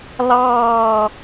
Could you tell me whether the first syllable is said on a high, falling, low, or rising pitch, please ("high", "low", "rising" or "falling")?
falling